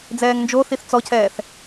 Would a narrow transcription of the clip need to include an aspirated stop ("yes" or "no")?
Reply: yes